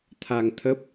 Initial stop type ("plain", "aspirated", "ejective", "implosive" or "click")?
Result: aspirated